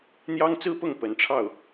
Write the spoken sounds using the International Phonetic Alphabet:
n̪ j ɑ˥ ŋ t͡s ɹ̩˥ p ʊ˥˩ ŋ p ə˧˥ n ʈ͡ʂʰ ɑ˥˩ ʊ̯

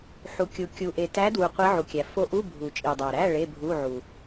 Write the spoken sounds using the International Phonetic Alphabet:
ħ u˨ kʲ u˨ kʲ u˨ ʔ e˨ t æ˧˥ d w u˨ qʷ i˧˥ ʕ u˨ kʲ æ˨ f o˧˥ ʔ u˧˥˧ bʱ u˨ t͡ʃʼ i˨ dˤ æ˨ ɾ æ˧˥˧ ɭ e˧˥˧ bʱ u˧˥˧ ʕ u˨

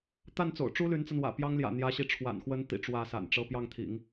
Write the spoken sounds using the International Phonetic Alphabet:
t̪ a˥˩ n t͡s o̰˨˩ ʊ̯ ʈ͡ʂ u˥ l y˧˥ n t͡s a˧ n w ä̰˨˩ p j ɑ˥ ŋ l j ä̰˨˩ n̪ j ä˧˥ ɕ i˧˥ ʈ͡ʂʰ w a̰˨˩ n x w ə˧˥ n t̪ ḭ˨˩ ʈ͡ʂ w ä˥˩ s a̰˨˩ n ʈ͡ʂ ɤ˥˧ p j ɑ˥˩ ŋ t̪ʰ ḭ˨˩˦ ŋ

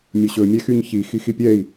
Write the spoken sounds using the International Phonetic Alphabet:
mʲ ɵ ɕ ɵ mʲ ɛ x y ɲ ç i x i x i pʲ ɛ i̯

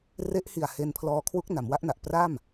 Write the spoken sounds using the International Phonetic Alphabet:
r e˦˥ ʔ h i˨˩ a̯ h e˧ n pʰ l ɔː˧ kʰ w u˦˥ k̚ n a˩˦ m w a˦˥ ʔ n a˨˩ ʔ p r a˥˩ m

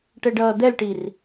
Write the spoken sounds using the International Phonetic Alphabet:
ʈ ɛ ɖ ʌː d̪ ɛ l ʈ i r

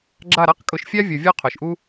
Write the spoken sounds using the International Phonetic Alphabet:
ɡ͡ǁ a˦˨ ɾ a˦ q kʼ ʊ˧ ʃ fʲ a˦ vʲ o˨ vʲ ɔ˦ qʰ ʊ˨ ʃ ʔ u˦

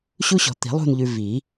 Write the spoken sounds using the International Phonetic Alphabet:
ɕ u˦ ɕ ɔ̤˨ t̪ i̤˨˩˦ lˠ ṳ˦˨ n ʎ ʉ˨ v i˨˩˦

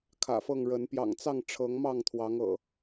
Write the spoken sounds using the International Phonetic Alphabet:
kʰ ä̰˨˩ f ɤ˥˨ ŋ ɻ ə˨˦ n p j ɑ̰˨˩ ŋ t͡s ɑ˥˨ ŋ ʈ͡ʂʰ ɤ˨˦ ŋ m ɑ˥˨ ŋ t̪ʰ w ɑ˨˦ ŋ ɤ̰˨˩

